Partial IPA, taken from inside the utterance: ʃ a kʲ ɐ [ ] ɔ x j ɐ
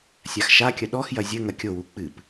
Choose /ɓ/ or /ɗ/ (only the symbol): ɗ